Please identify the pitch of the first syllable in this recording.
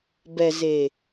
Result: low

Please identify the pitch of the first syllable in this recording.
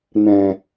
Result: low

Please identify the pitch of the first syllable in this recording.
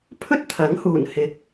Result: high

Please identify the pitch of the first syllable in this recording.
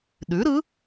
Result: rising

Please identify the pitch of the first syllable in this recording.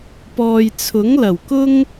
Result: low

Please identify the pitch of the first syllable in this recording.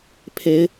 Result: rising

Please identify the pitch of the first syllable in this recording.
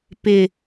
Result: low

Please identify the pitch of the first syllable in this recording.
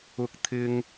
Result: high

